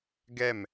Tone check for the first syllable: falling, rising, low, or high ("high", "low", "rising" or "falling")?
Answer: falling